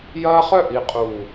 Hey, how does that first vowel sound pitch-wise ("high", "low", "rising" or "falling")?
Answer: high